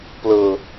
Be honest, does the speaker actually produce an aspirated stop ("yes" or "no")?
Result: no